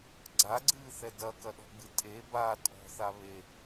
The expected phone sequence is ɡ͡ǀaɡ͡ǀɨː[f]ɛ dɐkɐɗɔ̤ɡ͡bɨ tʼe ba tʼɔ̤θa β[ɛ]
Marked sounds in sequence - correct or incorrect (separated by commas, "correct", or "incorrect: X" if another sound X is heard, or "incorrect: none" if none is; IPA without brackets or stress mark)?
incorrect: θ, incorrect: e